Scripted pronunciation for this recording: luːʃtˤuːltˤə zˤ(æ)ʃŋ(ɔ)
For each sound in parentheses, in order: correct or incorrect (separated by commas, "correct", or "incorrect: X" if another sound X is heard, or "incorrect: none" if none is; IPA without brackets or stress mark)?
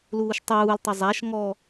correct, correct